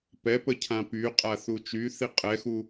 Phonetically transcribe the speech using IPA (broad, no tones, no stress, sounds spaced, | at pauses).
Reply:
p ɛ p ə cʰ ã p y qʼ a θ u t͡ʃ y θ i qʼ ɛ x u